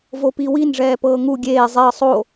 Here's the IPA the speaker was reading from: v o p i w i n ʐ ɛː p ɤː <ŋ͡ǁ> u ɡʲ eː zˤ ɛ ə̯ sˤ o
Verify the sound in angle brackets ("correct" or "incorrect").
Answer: incorrect